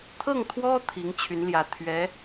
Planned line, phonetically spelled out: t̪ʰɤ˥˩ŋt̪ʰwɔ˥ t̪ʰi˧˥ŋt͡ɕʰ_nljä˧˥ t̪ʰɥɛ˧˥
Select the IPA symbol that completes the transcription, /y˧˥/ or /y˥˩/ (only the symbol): y˧˥